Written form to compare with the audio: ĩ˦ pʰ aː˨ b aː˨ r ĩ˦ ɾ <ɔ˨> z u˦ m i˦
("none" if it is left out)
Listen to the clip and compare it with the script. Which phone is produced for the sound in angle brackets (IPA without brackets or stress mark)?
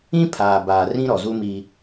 ɔ˨